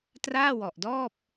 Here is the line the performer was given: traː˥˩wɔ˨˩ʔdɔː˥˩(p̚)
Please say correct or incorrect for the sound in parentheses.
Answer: correct